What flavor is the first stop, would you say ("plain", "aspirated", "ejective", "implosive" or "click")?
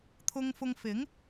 aspirated